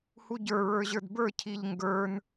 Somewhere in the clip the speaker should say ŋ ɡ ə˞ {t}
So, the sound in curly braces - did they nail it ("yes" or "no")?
no